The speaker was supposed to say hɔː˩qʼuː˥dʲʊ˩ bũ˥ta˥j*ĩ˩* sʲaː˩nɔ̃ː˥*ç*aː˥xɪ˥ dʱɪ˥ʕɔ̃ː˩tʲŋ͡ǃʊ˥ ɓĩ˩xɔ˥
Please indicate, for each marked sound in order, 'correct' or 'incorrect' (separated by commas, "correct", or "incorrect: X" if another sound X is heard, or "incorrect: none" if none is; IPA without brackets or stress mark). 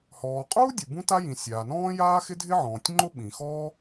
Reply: correct, incorrect: j